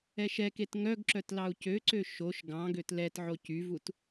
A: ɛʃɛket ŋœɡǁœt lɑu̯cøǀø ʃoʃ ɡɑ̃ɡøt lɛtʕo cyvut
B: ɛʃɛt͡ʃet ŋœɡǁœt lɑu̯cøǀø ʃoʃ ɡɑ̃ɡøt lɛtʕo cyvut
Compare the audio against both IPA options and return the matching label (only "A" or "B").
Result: A